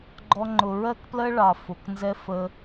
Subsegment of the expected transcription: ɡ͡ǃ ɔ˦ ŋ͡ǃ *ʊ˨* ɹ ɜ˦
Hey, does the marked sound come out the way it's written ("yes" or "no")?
no